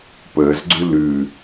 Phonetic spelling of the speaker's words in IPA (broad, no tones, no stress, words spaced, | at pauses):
pəːzɡ͡ǀʉ lʉ